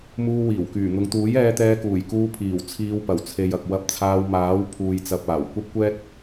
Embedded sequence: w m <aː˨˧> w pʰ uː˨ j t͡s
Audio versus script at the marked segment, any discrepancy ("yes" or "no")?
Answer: yes